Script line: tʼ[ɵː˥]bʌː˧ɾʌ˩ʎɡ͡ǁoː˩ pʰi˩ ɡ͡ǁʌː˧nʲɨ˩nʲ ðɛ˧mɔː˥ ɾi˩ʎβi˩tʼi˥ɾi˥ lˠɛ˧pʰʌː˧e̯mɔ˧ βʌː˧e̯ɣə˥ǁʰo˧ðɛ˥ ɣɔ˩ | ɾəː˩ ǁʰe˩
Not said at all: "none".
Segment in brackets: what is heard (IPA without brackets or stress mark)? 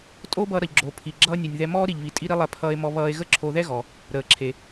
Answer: oː˥